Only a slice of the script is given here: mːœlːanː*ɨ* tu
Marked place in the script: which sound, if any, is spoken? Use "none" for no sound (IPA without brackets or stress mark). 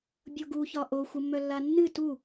ɨ